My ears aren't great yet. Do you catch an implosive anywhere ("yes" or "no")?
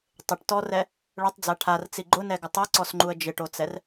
no